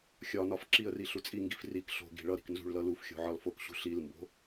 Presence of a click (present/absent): present